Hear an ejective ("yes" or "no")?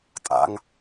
yes